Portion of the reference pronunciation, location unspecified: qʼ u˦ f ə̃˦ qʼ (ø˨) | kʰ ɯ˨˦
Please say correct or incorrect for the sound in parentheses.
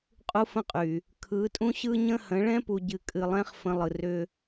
incorrect